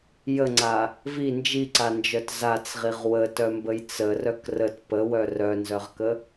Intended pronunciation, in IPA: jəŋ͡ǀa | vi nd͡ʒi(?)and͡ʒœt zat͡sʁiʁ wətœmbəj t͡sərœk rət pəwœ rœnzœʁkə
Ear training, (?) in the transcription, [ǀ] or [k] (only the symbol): ǀ